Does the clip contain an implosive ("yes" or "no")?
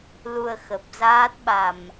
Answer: yes